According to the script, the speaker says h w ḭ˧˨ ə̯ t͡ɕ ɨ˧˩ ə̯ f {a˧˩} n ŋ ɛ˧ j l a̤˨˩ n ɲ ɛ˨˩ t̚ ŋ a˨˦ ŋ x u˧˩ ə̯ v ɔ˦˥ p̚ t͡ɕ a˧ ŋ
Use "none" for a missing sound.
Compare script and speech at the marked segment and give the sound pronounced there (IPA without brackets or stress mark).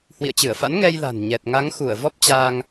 a̰˧˥